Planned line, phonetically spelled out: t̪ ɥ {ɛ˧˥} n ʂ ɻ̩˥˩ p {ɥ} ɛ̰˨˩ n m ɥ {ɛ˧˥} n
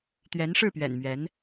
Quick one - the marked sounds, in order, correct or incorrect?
correct, correct, correct

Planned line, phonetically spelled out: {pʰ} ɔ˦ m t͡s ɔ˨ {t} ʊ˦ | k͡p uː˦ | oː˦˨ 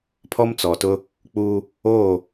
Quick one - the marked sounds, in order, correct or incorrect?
correct, correct

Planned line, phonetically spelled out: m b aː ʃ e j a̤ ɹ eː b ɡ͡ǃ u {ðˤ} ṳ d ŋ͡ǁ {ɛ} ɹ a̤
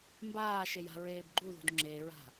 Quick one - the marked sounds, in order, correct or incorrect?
incorrect: ð, incorrect: e

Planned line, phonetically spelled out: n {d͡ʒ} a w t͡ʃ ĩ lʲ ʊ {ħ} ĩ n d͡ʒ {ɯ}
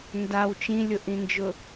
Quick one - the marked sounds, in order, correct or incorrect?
incorrect: d, incorrect: ʔ, incorrect: ʊ

